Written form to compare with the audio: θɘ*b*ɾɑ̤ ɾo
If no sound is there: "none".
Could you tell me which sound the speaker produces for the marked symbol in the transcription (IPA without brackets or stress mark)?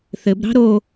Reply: b